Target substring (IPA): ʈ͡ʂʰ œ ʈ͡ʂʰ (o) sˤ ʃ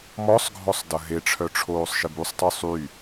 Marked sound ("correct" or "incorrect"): incorrect